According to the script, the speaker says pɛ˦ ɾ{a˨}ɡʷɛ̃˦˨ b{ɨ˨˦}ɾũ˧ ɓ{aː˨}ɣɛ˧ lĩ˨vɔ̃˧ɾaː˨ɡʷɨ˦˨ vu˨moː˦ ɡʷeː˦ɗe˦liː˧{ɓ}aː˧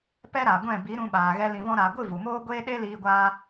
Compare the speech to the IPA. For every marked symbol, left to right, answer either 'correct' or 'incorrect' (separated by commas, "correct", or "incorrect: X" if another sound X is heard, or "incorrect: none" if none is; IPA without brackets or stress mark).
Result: correct, incorrect: i˨˦, correct, incorrect: ɡʷ